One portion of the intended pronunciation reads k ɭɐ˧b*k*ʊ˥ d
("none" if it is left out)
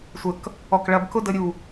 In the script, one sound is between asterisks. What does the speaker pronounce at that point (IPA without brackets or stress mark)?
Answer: k